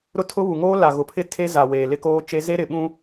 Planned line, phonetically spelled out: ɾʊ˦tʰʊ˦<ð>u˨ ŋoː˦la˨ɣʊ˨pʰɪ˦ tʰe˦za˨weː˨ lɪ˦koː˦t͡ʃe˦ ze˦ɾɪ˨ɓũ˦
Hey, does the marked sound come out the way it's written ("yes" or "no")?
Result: no